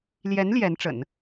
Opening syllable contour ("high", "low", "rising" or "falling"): rising